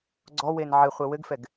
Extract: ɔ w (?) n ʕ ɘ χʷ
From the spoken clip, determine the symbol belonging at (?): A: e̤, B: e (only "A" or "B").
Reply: B